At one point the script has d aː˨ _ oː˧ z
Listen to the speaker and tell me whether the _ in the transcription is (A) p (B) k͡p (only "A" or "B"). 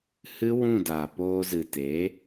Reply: A